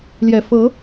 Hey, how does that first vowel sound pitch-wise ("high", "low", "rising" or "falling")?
low